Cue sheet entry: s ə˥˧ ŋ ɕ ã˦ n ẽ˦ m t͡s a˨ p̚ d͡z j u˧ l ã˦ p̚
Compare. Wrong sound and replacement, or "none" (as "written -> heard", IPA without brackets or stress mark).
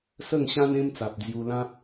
none